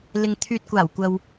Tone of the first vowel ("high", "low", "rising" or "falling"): low